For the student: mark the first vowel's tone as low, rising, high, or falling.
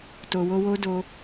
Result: low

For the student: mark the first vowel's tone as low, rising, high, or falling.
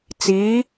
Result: rising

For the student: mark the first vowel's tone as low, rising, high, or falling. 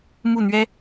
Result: falling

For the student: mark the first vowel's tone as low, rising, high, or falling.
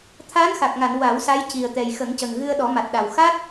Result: rising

